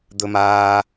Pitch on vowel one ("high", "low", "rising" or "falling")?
high